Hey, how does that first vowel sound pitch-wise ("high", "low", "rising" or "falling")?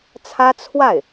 high